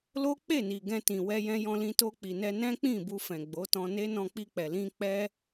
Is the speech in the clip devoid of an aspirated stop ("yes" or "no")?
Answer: yes